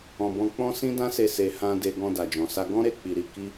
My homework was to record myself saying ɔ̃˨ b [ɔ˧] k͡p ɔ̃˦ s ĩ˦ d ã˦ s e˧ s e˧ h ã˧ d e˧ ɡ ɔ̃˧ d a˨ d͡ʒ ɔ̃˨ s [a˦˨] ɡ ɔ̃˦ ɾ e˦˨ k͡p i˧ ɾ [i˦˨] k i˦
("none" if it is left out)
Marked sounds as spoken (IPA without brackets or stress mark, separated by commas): ɔ̃˧, a˧, i˧